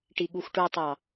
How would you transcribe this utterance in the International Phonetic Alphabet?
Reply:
ʈ i ɠ u x ʈ u tˤ ɑ

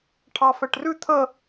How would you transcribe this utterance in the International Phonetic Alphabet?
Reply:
ʈʰ ɑ f ɛ ʈ r ʉ t̪ʰ ə

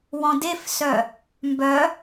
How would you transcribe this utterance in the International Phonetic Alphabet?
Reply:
w ɔ̃ d e f s œ | m b œ

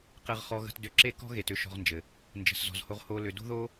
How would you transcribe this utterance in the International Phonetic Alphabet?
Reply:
q ɘ˧ ʁ χ ɔ˧ ɣ ə̤˧ t d ʏ˧ ǁ e˦ k ɔ̤˦ ɣ e˨ t ʏ˦ ʃ ɔ̤˧ ʁ n d͡ʒ ɘ˨ | n d͡ʒ ə̤˨ s z ɔ̤˨ z h o˧ ʁ h o˧ l ʏ˨ d o̤˦ ð o˦

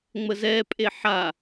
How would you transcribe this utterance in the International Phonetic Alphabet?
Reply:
ŋ͡m ə z ɛ pʼ e ħ a

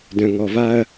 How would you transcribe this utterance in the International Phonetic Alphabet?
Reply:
d œ̃˨ ŋ ɔ˨ v a˦ ɐ̯

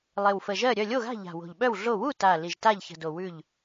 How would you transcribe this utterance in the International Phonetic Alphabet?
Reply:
lˠ e˨˩ w f ə˨˩ ʒ ɜ˥˨ ɾʲ œ˥˨ lʲ o˥˨ ɣ a̤˥˨ ʎ a̤˨˩ w o̤˨˩ ʎ ɓ œ˥˨ w ɮ o˥˨ w u˥˨ t a˨˩ l i˨˩ ʒ t a˥˨ ʎ ç ə̤˨˩ d o˨˩ w ʉ˥˨ ʎ

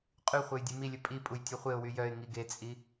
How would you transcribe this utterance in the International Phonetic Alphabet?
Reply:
qʼ y χʷ e j dʲ u m i lʲ ɵ pʼ i pʼ u j tʲ ɔ χʷ e ʊ̯ w y j œ ɪ̯ ŋ i ɡ e t͡sʼ i

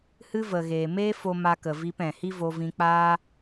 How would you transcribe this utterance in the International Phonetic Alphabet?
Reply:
h ɨ˦ v ə˨ ɣ eː˨ m eː˦ f o˧ m a˧ k ə˨ v iː˧ p ɛ̃˨ h i˦ v o˧ v ĩ˧ k͡p aː˦

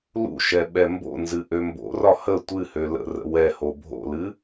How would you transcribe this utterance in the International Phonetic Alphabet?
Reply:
l ṵ ʃ ɛ ɓ ɛ m b o̰ n z ɨ ʔ ø m b o̰ r ɒ h ə tʷ ɨ h ø l ə̰ r ə̰ w ɛ h o bʱ o̰ l ɨ

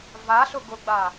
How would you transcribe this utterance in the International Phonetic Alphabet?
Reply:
v a ɬ ʊ ɡ ʊ ɡ͡b a

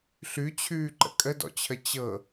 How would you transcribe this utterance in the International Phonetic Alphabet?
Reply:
ɬ ʉ t͡ɕʰ ʉː ǃ ə̰ kʼ ə d ɔ̰ t͡ɕʰ ə t͡ɕ ɤ

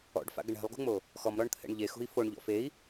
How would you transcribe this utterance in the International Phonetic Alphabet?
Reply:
ɔ̰ ɖ f a̰ ɡ ə ɳ ɛ̤ lˠ ɡ ṳ ŋ͡m o | x ɔ m ɾ ɔ ɳ t̪ʰ ɛ̰ ɳ ʎ e x ṳ i̯ f o ɳ ʎ ɔ̰ f e i̯

